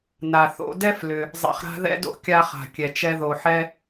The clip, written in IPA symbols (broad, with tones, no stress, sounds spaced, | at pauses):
n a˩ θ o̰˧ d ɛ˥ f l ʏ˩ | zˤ ɛ̰˧ χ ɾ a̤˥ ð ɛ̰˥ d o̰˥ kʲ a˧ χ a̤˩ kʲ ɛ˩ t͡ʃ ɛ˧ ð o˩ ħ ɛ˧